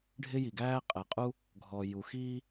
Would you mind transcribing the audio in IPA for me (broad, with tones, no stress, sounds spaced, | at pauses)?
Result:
ɖʱ ɪ˥ j i˩ ɡ æː˥ qʼ ɛ˩ qʼ u˥ | ɡʱ ɔ˩ j u˩ x iː˥